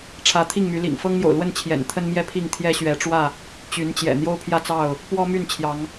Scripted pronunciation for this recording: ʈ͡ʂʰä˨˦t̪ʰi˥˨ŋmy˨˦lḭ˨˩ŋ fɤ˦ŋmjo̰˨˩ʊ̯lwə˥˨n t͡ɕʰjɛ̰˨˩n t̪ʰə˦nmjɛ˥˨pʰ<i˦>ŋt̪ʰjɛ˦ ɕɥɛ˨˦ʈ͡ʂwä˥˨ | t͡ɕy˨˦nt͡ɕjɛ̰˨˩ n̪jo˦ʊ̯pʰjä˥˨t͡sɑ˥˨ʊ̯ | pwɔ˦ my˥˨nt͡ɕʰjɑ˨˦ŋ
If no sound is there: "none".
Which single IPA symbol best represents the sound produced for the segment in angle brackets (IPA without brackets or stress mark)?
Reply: i˥˨